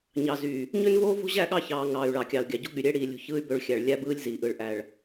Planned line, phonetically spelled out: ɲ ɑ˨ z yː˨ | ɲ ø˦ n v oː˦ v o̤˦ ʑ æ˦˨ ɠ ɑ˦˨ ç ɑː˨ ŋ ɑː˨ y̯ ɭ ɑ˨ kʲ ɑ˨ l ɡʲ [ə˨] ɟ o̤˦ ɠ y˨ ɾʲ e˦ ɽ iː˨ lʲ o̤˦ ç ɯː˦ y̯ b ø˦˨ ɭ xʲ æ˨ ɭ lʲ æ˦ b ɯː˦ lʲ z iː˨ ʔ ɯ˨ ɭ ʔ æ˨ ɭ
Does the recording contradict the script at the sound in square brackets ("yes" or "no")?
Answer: yes